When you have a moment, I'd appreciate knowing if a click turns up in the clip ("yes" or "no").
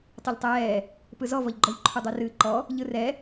yes